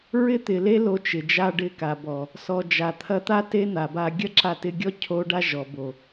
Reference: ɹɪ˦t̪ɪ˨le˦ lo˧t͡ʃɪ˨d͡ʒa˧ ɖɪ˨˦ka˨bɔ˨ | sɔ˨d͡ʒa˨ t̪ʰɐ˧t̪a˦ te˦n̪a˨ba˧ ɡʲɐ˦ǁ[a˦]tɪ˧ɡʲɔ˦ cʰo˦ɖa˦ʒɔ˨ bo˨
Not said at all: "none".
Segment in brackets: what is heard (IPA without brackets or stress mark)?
a˧